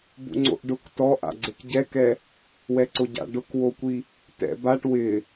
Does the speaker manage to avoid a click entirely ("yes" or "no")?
no